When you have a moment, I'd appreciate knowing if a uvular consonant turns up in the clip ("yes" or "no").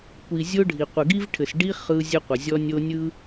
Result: yes